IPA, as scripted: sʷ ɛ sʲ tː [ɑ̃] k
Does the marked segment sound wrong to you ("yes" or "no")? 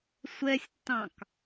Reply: no